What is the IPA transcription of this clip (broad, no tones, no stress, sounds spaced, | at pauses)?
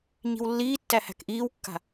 ɲ i̤ w lː iː tː æ h æ̤ k ʔ iː w kː a̤